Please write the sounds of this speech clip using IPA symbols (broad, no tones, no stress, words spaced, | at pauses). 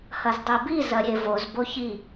hɐzdˤibi zɐɾʲevoz boçi